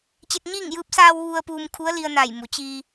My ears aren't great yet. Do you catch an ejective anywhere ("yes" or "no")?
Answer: no